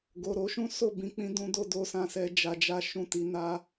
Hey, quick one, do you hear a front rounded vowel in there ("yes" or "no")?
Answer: no